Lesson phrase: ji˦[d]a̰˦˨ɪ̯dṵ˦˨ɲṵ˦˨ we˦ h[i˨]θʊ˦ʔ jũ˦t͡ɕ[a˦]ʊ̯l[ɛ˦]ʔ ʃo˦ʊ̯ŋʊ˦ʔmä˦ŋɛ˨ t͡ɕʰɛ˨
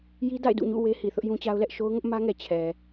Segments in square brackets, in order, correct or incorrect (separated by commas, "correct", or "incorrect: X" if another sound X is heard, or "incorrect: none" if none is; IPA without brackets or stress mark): correct, correct, correct, correct